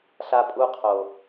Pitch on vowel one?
high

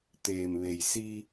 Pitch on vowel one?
low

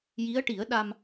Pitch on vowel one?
rising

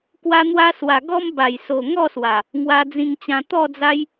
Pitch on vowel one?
high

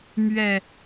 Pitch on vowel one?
low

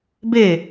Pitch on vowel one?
falling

